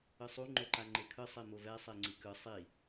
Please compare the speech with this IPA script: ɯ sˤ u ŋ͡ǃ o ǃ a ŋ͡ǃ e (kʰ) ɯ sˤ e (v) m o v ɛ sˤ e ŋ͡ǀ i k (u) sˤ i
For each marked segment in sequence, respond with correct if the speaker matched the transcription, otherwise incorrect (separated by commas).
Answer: correct, incorrect, incorrect